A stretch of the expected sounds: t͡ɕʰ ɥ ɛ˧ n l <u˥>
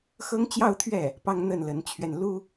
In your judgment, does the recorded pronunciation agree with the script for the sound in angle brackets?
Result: yes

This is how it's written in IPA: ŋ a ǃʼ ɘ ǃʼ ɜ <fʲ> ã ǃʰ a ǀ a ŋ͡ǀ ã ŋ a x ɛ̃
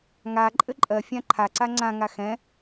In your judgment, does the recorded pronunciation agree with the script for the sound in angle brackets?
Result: yes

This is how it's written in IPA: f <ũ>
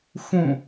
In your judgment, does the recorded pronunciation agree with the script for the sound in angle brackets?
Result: yes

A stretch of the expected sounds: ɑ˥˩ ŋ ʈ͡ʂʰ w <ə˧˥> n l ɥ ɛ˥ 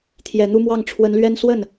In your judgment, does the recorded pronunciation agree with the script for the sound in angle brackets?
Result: yes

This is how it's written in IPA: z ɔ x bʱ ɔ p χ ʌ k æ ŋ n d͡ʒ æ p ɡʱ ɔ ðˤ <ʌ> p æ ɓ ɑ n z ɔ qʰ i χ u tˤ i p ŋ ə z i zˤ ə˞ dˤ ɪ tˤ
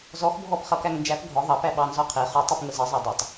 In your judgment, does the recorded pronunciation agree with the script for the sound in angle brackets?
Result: no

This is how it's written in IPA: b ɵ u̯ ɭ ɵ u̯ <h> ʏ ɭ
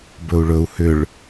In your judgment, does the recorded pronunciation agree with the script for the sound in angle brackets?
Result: yes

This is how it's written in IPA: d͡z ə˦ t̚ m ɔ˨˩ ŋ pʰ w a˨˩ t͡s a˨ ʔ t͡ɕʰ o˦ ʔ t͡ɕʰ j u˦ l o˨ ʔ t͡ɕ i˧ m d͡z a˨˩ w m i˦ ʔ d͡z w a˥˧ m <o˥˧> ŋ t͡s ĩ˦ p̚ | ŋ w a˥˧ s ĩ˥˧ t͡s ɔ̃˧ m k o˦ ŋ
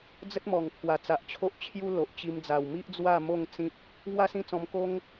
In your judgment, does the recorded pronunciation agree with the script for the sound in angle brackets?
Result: yes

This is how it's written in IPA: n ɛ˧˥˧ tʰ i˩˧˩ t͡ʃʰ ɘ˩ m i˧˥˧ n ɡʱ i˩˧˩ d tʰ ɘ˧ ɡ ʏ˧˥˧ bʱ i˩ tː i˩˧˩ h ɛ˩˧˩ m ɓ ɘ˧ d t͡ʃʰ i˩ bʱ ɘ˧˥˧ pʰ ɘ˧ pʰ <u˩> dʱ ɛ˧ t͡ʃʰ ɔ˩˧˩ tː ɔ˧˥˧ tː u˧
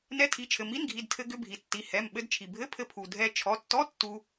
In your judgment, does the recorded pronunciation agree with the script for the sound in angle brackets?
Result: yes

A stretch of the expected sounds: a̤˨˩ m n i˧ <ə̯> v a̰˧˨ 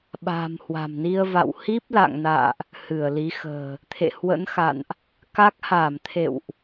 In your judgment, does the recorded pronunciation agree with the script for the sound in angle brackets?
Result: yes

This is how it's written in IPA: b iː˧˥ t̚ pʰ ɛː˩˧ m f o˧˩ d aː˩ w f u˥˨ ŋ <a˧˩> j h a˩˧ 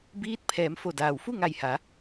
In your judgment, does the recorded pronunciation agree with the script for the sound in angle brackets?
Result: yes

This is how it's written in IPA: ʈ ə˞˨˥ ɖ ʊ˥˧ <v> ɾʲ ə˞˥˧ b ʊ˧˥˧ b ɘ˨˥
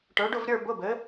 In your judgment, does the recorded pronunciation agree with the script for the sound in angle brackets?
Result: yes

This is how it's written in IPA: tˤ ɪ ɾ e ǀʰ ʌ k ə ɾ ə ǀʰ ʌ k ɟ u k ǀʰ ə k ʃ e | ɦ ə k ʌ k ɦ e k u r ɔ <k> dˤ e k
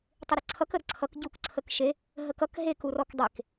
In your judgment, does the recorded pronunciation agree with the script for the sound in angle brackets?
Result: yes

